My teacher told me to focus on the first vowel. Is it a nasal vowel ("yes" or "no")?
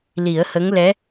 no